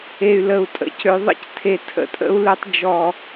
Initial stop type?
ejective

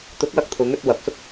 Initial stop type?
plain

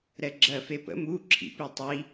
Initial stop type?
click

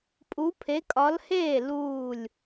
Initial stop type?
ejective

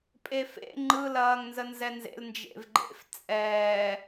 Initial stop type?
ejective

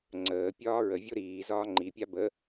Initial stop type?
click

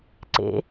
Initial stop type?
click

